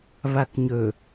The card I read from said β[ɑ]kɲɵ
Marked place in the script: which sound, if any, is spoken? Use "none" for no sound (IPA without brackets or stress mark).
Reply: a